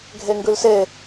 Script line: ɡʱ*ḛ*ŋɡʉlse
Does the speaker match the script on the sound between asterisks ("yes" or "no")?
no